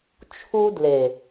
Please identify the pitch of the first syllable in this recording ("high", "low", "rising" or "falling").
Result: high